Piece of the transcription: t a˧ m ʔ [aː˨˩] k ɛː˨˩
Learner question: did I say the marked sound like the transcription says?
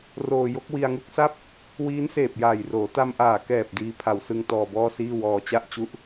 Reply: yes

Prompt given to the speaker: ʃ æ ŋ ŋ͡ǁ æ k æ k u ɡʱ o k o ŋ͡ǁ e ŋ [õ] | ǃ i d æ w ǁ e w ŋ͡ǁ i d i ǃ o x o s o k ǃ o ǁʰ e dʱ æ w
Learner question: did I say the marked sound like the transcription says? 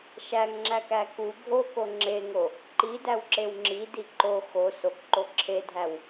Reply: no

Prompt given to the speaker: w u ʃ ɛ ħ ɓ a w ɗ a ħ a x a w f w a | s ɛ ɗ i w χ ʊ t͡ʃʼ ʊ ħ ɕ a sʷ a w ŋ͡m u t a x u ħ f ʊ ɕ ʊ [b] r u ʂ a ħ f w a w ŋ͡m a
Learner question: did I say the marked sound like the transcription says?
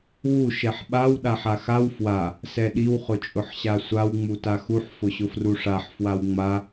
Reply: no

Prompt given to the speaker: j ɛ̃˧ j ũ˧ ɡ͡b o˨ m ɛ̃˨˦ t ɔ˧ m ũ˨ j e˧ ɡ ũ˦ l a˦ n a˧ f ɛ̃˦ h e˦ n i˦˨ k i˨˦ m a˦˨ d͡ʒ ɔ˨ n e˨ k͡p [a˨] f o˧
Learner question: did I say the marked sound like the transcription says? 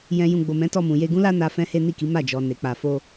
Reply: yes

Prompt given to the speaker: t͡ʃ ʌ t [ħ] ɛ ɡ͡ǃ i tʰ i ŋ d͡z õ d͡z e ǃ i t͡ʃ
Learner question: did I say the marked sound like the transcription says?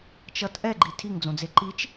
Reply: no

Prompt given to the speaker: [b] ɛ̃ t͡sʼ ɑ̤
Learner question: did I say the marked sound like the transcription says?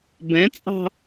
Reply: yes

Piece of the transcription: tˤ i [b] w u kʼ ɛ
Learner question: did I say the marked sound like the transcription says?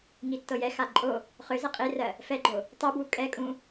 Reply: yes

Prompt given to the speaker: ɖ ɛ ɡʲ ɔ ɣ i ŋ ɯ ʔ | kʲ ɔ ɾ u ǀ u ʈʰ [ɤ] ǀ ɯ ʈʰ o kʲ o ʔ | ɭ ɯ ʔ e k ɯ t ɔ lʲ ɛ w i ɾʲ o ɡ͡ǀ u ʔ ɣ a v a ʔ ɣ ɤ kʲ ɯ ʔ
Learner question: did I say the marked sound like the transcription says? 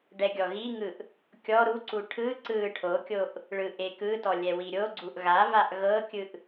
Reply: no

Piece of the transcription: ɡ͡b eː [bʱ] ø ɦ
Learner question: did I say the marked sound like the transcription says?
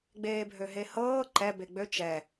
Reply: yes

